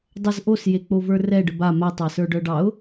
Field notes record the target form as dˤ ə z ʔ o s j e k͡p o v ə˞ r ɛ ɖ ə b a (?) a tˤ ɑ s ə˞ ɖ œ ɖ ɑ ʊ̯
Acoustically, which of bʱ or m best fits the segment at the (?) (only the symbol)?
m